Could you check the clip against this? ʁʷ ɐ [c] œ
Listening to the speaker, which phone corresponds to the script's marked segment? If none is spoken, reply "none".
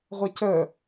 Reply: c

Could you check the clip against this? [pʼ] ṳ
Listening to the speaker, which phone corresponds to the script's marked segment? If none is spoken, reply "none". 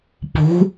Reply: p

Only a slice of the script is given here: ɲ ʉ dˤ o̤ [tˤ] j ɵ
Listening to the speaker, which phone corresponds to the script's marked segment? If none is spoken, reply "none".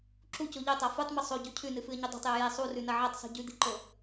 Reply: tˤ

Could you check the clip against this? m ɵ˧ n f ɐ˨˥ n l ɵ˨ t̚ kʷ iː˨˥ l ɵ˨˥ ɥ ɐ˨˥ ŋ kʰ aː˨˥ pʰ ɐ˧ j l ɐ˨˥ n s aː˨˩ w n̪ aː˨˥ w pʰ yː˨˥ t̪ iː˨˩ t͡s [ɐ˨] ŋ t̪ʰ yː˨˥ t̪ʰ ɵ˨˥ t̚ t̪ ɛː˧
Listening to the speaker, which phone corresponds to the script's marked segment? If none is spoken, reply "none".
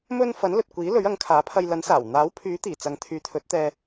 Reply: ɐ˨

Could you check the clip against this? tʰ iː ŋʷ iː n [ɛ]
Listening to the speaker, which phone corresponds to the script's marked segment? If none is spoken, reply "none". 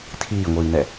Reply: ɛ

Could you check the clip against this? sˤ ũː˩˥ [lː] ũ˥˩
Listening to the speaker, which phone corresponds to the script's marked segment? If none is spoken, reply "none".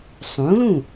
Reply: l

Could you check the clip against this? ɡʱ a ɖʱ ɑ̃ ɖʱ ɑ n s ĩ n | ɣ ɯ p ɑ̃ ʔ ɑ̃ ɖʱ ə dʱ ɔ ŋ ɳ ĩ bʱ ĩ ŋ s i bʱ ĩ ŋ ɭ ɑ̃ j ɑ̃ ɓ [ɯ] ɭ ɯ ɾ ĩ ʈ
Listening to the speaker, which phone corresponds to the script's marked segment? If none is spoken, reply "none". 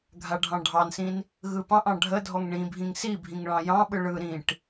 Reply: ɯ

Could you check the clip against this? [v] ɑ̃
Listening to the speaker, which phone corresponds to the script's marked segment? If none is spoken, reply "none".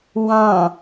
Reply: w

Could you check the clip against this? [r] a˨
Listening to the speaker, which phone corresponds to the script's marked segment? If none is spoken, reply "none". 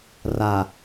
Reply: r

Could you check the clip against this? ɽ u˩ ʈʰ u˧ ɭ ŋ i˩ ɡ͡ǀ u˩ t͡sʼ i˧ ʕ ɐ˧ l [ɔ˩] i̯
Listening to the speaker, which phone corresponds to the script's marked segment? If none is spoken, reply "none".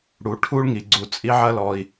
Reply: ɔ˩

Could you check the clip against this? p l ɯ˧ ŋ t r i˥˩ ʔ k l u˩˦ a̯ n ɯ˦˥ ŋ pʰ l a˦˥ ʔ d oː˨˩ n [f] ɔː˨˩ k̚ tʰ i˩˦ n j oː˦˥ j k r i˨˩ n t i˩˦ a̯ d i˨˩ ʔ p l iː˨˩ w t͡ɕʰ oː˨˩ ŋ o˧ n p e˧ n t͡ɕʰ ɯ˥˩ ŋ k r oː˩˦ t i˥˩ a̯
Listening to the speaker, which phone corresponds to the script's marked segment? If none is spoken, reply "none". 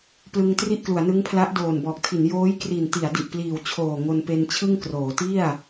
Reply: b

